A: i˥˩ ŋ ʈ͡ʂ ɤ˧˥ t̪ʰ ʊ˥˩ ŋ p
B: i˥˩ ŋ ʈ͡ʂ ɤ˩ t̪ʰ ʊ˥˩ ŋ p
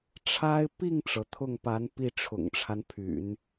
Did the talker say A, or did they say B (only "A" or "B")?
B